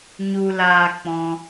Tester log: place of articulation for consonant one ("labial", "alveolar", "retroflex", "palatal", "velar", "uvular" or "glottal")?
palatal